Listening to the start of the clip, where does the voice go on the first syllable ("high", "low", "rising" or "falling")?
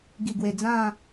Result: low